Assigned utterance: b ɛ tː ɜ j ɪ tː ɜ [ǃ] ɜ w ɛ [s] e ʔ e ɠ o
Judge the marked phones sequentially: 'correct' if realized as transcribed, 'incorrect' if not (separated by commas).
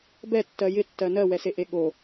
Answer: incorrect, correct